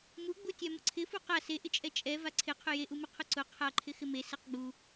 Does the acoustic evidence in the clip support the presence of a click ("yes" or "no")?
yes